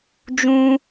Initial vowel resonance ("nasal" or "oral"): nasal